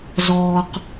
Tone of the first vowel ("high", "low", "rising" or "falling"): low